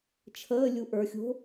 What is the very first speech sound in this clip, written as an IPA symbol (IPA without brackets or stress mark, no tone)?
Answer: t͡ʃʰ